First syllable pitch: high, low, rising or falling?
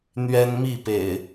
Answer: high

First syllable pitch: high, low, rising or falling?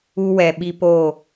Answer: high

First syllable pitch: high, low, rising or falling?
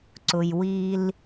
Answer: low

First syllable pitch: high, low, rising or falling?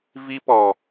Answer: high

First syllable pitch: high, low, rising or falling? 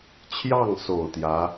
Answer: falling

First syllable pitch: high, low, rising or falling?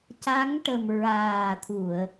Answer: rising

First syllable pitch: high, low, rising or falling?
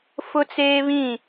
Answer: high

